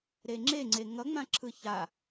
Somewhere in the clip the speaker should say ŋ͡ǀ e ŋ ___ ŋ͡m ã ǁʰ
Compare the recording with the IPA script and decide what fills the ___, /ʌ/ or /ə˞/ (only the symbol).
ʌ